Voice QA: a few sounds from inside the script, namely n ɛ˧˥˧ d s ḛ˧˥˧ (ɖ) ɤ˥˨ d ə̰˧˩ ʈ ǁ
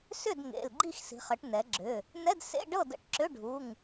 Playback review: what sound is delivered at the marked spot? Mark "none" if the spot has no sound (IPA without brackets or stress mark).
ɖ